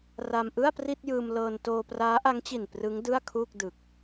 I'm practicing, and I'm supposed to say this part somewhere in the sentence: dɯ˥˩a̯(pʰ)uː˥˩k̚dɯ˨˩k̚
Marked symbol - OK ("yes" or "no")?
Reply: no